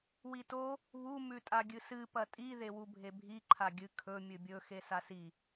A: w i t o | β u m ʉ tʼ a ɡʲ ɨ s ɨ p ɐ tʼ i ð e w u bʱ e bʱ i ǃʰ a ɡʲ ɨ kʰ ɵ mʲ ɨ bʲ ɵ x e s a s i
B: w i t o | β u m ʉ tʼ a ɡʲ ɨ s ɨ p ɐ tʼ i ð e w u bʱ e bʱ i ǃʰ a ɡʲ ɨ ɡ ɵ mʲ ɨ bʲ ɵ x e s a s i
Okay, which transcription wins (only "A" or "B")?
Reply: A